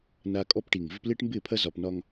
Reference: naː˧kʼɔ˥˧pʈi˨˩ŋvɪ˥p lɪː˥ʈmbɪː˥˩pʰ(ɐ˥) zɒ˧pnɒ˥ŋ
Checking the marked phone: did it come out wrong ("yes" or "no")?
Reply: no